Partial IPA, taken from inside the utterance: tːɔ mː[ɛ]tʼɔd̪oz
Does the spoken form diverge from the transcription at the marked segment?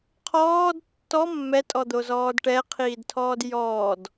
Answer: no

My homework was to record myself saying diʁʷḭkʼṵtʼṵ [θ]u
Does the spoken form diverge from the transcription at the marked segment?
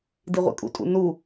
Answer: yes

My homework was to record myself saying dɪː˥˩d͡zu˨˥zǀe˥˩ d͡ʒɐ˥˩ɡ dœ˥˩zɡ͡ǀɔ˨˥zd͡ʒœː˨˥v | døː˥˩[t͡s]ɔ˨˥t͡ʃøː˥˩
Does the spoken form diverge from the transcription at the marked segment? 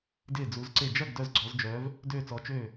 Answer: no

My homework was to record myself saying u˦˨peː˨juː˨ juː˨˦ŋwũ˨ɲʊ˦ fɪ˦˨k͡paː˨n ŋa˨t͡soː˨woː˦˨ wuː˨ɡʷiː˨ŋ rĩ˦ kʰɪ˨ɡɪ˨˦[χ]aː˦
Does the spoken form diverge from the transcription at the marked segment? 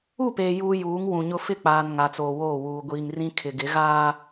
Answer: yes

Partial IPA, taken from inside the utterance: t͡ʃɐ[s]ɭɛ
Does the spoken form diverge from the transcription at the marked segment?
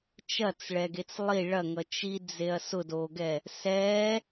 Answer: yes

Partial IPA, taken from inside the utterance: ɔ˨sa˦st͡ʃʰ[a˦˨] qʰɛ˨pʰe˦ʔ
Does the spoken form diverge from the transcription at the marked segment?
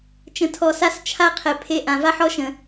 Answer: yes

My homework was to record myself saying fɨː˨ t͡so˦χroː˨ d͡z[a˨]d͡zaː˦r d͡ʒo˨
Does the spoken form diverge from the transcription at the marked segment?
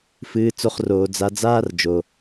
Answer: no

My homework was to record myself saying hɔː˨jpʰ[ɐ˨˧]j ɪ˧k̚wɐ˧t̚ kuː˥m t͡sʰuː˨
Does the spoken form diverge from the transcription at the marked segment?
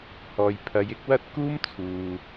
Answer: no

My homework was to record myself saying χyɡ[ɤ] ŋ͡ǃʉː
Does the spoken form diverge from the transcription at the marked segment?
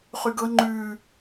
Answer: no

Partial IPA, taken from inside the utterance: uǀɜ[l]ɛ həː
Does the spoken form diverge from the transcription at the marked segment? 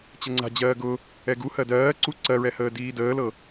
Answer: yes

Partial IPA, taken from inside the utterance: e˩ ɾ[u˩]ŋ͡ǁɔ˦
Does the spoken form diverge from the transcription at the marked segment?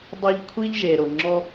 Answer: yes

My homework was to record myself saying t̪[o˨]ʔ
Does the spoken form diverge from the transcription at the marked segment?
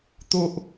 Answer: yes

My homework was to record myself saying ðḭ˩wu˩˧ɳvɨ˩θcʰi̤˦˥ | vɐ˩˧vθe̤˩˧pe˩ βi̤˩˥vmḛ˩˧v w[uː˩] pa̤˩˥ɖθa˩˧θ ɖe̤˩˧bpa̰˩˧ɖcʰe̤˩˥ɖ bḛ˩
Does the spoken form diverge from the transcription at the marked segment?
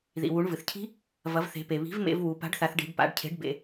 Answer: yes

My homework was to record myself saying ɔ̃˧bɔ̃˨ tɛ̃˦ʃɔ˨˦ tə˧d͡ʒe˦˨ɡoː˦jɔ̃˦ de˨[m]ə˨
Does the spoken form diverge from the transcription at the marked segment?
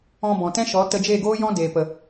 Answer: yes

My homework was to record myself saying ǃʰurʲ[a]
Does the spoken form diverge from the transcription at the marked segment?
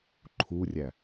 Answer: yes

